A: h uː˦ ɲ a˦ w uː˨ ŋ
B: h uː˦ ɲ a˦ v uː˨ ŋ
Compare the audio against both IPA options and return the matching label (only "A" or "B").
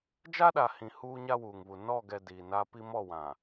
A